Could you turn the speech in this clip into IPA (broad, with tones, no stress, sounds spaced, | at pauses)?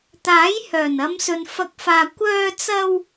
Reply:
t̪ aː˨˥ j h œː˨˩ n ɐ˨˧ m s ɵ˨ n f ɐ˨˥ k̚ f aː˨ kʷ œː˧ t͡s ɐ˧ w